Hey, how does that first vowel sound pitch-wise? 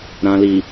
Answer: low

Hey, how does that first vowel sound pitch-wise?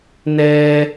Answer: high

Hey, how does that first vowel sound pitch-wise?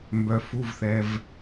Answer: low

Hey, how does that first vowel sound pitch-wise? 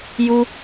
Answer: high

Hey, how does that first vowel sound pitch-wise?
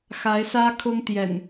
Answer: rising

